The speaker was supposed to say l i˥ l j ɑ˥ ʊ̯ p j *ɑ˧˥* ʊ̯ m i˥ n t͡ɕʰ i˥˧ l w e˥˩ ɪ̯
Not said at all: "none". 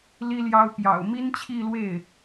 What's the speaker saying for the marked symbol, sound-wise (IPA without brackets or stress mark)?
ɑ̰˨˩